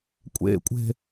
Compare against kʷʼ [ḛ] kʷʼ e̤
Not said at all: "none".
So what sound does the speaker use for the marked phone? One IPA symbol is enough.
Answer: ḛ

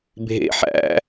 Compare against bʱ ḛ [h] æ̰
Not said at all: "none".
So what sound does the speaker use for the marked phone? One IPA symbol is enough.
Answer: ħ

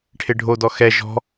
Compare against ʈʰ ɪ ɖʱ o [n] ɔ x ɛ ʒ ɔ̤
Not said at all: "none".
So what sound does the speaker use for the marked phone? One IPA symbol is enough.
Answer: d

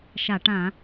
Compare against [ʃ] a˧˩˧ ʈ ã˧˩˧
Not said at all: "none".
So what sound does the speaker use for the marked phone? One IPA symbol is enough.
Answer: ʃ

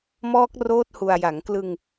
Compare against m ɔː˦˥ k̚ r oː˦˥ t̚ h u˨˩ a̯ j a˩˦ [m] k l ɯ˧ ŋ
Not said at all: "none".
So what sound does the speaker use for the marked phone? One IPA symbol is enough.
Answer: ŋ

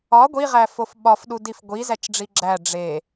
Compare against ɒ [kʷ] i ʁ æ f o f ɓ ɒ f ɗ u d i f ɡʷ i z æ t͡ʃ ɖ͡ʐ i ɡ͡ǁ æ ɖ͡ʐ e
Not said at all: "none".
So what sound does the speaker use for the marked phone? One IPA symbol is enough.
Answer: ɡʷ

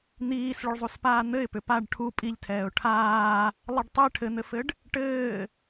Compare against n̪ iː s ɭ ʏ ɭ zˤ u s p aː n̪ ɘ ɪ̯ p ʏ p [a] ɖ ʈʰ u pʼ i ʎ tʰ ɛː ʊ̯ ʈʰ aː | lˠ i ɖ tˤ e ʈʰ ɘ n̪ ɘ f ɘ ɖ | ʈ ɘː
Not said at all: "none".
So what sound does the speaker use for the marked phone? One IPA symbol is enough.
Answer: a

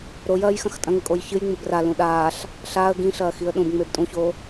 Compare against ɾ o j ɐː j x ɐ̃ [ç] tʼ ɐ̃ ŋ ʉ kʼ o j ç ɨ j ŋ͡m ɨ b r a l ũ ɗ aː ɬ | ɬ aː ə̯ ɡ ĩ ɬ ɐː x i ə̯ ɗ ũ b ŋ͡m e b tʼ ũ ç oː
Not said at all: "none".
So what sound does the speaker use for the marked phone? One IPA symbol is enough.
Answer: x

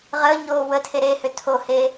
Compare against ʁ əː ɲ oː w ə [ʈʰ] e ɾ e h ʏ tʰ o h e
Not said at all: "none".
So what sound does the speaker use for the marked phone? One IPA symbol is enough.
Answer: tʰ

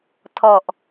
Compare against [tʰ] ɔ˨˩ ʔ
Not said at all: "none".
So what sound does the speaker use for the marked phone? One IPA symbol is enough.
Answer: tʰ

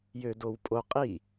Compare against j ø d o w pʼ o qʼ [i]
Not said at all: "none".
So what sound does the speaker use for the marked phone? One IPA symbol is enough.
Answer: i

